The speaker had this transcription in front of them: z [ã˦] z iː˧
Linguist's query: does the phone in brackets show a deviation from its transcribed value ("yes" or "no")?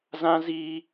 no